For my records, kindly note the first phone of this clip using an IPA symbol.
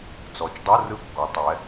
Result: t͡s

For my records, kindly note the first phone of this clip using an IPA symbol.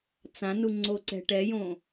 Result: t͡s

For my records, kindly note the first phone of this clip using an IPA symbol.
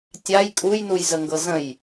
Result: tʲ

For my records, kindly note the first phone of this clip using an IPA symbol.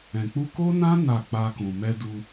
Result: ɛ̃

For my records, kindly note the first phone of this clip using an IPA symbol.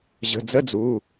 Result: ʑ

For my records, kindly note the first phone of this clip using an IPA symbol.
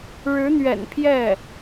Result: ɻ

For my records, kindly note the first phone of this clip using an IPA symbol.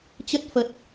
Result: t͡ɕ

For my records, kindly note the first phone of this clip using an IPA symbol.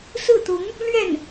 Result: s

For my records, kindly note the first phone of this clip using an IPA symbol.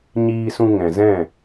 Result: ɲ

